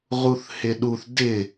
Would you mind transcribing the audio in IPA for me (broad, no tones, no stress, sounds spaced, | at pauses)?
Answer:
ʁ u θ h ɪ ɗ u θ d ɪ